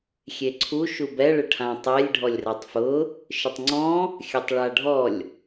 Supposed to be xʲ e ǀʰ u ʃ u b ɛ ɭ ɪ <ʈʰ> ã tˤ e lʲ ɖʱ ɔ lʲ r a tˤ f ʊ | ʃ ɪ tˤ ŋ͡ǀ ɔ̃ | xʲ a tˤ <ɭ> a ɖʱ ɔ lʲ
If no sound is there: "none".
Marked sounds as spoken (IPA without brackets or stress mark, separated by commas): ʈʰ, ɭ